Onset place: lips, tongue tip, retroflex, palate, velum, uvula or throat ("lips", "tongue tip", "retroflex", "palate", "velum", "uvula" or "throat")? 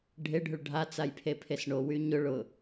retroflex